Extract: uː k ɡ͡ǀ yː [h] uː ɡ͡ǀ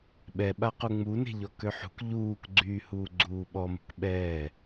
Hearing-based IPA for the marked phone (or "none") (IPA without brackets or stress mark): h